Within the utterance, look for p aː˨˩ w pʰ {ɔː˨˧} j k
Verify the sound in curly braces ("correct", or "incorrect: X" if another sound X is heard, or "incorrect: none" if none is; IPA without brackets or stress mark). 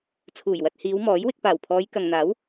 correct